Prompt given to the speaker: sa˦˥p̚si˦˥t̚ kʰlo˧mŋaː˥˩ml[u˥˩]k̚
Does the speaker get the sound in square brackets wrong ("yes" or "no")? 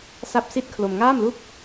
no